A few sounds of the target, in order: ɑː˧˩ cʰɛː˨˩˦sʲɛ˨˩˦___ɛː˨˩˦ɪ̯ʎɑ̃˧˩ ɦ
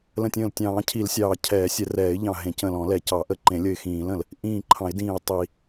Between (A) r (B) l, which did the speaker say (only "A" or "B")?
A